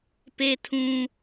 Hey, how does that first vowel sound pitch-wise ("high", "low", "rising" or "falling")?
high